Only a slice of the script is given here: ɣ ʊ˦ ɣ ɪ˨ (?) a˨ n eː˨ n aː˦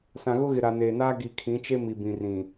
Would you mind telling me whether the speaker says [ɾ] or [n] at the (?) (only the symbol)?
ɾ